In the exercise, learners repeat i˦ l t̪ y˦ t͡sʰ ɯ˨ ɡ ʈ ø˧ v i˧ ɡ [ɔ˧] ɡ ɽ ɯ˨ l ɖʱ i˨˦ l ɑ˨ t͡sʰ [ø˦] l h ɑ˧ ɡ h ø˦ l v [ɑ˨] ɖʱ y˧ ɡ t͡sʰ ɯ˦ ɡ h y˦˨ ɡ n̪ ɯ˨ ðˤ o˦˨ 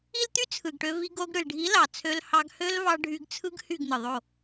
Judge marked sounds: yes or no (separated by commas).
no, no, no